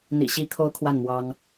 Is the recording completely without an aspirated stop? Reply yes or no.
no